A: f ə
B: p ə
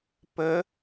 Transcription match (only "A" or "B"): B